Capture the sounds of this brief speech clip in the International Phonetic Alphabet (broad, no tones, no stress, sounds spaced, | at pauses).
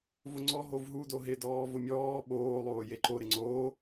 v ʊ ŋ͡ǀ ɔ ɦ o v ɦ u d o ɦ ɪ d ɔː v ʊ mʲ ɔː ɓ oː lˠ oː j e ǃ o ɾ ɪ ŋ͡ǀ oː